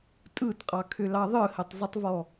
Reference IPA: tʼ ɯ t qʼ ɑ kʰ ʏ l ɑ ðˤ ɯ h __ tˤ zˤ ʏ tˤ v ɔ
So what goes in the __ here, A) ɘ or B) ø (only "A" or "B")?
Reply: A